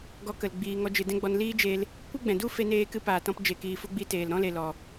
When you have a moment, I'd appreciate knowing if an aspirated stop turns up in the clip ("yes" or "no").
no